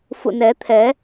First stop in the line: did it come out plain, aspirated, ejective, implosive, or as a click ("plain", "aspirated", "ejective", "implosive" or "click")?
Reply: aspirated